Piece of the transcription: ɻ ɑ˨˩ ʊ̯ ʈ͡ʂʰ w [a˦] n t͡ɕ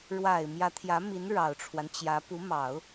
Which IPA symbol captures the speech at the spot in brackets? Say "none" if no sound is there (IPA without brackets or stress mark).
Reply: a˦